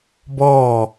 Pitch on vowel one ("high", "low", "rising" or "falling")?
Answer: falling